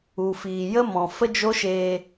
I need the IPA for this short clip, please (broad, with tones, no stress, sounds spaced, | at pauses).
u˨ f iː˨ j ə˦ m ɔ̃˨ f ə˦ d͡ʒ o˦ ʃ eː˧